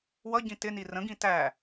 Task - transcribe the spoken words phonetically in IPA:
w ʌ ɟ ĩ t ɪ n i r ə̃ ɡ ĩ t æ

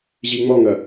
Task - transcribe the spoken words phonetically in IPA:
ʑ i ŋ͡m ɔ ŋ ɐ

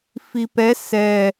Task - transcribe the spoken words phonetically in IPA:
f i p ɛ s ɛ

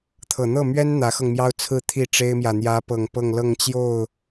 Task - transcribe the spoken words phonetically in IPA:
t̪ʰ ɤ˨˩ n̪ ɤ˥˩ m ɥ ɛ˥ n n̪ ä˧˥ x ɤ˧ ŋ m j ɑ˥ ʊ̯ t͡sʰ ɹ̩˥˧ t̪ʰ i˥˩ ʈ͡ʂ e˥ ɪ̯ m j ä˨ n̪ j ä˧˥ p ɤ˨˩ ŋ p ɤ˥˧ ŋ l ɤ˥˧ ŋ t͡ɕ j o˥˩ ʊ̯

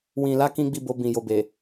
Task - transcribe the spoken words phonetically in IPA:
w ĩ˨ l a˧ k ĩ˦ ɡ͡b i˦˨ b o˧ b ĩ˨ j o˨ b e˨

